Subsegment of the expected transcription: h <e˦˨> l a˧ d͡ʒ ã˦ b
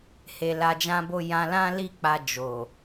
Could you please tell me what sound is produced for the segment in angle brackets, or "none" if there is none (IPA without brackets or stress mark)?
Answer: e˨